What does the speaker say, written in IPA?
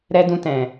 ɾ ɛ˦ d ũ˦ t ɛ̃˧

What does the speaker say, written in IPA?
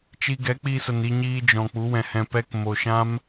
t͡ʃ i˧ ɡ ɛ˨˦ k͡p i˧ s ə˨ n i˧ ɲ iː˧ d͡ʒ ɔ̃˨ k͡p u˨˦ w ɛ̃˨ h ɛ̃˧ p ɛ˦ k m o˨ ʃ ã˦ m

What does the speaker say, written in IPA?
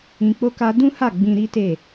ĩ˧ k͡p o˦ k a˦ d ũ˦ h a˦˨ ɡ͡b ĩ˧ ɾ i˦ t e˦˨

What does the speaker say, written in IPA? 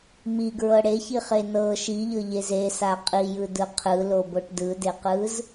m i ɡ ɹ ɤ ɽ e ç i χ e n ɤ ʃ i ʎ ɤ ʎ e z e s a qʼ i j ɯ d ɯ qʰ ɯ l o b o ʈ d ɯ d e q ɯ z

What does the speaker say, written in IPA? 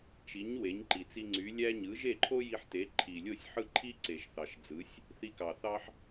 t͡ʃ i˩˥ ɲ w e˩˥ ɲ ǃ i˩ t͡s i˧ ŋ͡ǀ y˩˥ lʲ æ˥ ɲ ɯ˩˥ ʒ e˥˩ ǃʰ o˥ j i˧ ħ t e˩˥ ǃʰ i˩ lʲ o˥˩ sʲ ħ ɯ˥˩ ǃʰ i˥ ǀ e˩ ʃ θ ɑ˩ ʃ d͡z ɯ˩˥ sʲ | θ i˧ k ɑ˩ θ ɑ˥ ħ

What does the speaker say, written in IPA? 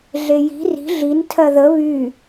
ɮ e j i̤ r i̤ ɮ i n tʰ ɜ ð ə β y

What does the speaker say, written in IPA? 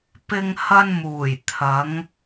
p ɪ˧ ŋ h ɐ˧ n m uː˨˩ j t̪ʰ ɐ˨˧ ŋ

